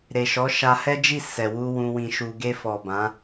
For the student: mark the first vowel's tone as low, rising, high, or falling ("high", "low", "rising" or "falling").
low